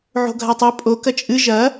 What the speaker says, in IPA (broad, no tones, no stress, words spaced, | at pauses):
ʕo̤ɡʱatˤo pʼo kɐt͡ʃʼɨ ʒɐ